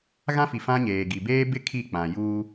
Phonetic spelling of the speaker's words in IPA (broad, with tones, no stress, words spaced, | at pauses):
ɣã˦fi˨ fã˦ɲeː˨ ɡi˨ beː˦bɪ˦ kʰi˦˨k͡pã˨juː˦